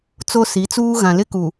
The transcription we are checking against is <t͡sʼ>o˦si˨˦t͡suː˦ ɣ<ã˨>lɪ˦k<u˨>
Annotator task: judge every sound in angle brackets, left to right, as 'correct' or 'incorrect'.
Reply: incorrect: t͡s, correct, correct

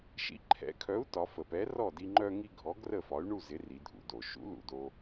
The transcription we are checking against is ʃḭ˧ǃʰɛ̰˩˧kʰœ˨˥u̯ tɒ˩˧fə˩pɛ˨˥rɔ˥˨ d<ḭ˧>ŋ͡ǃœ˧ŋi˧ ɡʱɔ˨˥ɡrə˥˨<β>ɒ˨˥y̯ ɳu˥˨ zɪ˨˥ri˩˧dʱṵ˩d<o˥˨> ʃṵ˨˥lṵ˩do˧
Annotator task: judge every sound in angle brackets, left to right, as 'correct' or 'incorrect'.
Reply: incorrect: i˧, incorrect: f, incorrect: o˩

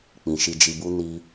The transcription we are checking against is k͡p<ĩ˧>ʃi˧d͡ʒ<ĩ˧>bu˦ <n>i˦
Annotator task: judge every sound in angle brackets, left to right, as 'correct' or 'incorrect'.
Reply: incorrect: ĩ˨, incorrect: i˧, correct

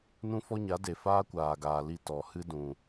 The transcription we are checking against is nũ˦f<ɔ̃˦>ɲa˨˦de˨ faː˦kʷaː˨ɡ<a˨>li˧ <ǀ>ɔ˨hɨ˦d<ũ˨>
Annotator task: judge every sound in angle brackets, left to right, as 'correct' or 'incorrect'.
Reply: incorrect: ɔ˦, incorrect: aː˨, incorrect: t, correct

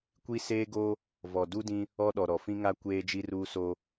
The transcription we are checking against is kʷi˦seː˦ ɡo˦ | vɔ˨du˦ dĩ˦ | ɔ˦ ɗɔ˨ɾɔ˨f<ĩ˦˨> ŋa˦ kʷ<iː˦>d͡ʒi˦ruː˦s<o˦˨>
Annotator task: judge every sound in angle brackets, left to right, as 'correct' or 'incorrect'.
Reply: incorrect: ĩ˦, incorrect: eː˦, incorrect: o˦

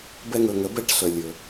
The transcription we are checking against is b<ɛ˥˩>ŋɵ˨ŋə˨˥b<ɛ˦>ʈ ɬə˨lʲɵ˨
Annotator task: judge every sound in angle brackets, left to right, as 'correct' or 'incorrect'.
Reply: incorrect: ɛ˦, incorrect: ɛ˥˩

